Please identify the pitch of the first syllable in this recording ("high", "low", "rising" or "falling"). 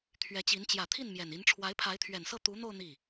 rising